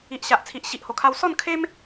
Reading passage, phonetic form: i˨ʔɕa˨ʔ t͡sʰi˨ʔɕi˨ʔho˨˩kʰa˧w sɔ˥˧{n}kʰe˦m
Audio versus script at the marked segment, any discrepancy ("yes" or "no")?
no